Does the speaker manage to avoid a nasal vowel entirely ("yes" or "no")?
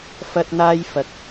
yes